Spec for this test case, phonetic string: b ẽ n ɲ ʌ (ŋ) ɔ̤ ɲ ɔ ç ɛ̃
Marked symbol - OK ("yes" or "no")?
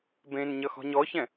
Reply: no